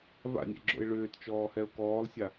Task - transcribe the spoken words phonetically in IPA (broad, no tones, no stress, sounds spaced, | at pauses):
v a̰ nʲ ɛ̰ ɡ͡ǁ o̰ ɪ̯ ɭ ʏː t t͡ʃ ɔː h ɛ ʊ̯ k ɔː lˠ sʲ a